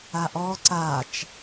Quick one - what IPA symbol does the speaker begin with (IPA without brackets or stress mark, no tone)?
a